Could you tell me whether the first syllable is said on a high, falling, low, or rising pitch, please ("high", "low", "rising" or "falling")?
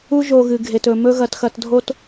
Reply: high